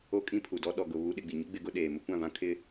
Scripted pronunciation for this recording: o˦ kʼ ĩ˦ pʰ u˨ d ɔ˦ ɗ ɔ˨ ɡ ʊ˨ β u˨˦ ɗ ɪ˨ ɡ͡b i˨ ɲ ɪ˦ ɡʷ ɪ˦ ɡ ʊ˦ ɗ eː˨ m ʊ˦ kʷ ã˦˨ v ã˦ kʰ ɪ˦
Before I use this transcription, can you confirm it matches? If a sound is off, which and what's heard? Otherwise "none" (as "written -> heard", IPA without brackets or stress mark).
ɡʷ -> ɡ͡b